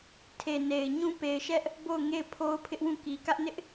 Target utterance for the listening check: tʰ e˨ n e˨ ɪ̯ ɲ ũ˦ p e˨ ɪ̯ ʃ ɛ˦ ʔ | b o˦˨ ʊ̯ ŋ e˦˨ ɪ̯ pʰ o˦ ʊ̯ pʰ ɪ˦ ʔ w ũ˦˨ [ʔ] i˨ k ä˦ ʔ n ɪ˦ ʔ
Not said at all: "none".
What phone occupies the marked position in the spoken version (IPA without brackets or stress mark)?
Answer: k